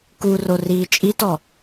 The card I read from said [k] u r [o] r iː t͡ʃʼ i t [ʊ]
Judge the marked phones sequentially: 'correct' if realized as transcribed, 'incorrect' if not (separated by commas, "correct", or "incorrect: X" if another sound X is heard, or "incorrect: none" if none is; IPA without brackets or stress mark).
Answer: correct, correct, incorrect: ɔ